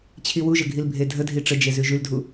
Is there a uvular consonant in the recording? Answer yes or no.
no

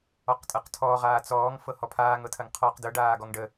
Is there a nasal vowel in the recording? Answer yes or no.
no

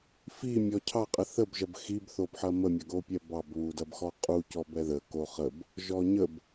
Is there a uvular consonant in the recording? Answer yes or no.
yes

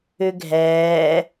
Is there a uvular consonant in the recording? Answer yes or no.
no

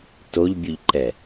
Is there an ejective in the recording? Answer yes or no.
no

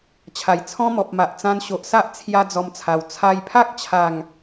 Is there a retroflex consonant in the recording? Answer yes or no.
no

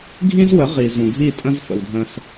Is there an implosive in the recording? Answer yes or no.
no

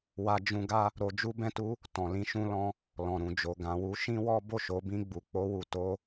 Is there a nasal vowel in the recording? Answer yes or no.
yes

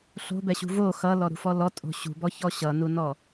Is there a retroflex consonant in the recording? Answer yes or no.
no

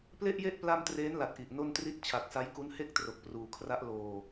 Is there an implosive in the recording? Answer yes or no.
no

